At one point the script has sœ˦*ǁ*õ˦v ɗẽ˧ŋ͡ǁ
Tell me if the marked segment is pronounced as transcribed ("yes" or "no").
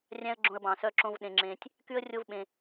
yes